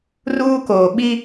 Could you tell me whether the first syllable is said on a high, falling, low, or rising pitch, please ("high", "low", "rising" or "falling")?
high